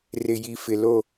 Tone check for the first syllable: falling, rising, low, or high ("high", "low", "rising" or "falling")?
low